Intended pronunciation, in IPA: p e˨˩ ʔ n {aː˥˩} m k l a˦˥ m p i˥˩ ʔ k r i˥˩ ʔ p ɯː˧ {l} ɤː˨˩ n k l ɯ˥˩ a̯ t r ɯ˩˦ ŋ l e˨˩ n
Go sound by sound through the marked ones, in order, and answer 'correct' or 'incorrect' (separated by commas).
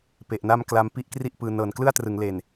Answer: incorrect, incorrect